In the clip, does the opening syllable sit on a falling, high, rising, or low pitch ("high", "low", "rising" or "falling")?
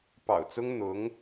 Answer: low